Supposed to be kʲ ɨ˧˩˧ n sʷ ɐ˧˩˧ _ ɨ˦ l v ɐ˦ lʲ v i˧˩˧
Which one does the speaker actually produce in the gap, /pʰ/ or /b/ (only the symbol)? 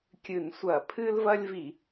pʰ